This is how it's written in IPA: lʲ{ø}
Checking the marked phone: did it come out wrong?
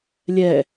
yes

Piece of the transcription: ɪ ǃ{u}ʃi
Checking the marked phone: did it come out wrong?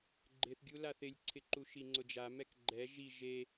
no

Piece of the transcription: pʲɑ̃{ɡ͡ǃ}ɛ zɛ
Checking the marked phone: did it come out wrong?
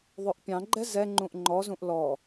no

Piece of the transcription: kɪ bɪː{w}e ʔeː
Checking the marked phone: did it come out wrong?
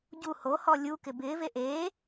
yes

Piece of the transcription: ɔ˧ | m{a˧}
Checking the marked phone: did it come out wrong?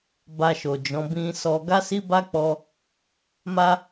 no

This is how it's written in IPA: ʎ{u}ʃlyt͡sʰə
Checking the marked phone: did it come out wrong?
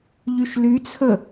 yes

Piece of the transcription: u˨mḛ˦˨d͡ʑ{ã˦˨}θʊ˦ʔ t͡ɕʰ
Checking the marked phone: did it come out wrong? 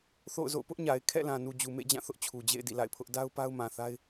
no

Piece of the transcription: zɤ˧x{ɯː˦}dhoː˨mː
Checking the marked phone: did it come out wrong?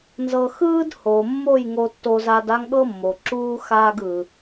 no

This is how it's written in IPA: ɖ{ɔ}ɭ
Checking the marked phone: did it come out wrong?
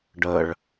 yes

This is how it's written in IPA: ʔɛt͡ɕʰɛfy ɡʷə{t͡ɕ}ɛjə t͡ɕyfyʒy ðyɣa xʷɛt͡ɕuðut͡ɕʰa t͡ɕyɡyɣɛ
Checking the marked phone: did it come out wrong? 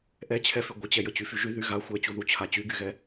no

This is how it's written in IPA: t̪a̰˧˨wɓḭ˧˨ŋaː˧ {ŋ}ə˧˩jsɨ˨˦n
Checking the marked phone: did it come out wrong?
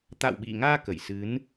yes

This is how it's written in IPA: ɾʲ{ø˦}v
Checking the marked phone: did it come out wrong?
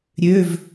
yes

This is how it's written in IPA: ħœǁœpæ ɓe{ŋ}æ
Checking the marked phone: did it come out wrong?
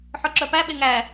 no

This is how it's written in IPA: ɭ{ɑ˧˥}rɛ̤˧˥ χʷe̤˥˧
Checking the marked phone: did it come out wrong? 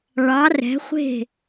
no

